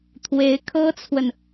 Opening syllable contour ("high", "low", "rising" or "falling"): rising